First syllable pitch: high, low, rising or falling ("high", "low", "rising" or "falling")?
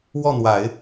falling